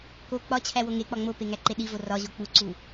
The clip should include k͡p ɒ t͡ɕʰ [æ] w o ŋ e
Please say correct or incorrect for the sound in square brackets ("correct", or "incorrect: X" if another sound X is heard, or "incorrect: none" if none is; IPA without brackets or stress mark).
correct